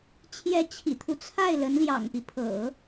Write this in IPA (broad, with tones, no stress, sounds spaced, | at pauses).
t͡ɕʰ j ɛ˧˥ t͡ɕʰ ḭ˨˩ t̪ʰ u˦ t͡sʰ a˥˩ ɪ̯ l ə˧˥ n l j ɑ̰˨˩ ŋ p i˦ pʰ ɤ̰˨˩˦